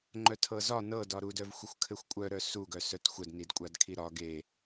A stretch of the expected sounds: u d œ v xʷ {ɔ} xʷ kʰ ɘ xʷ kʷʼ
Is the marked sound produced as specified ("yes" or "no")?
no